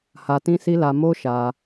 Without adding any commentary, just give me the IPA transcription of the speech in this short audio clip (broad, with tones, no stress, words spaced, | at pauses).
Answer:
ha˧tĩ˦si˦la˧ mo˦ ʃa˧